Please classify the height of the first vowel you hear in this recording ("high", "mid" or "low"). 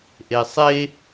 mid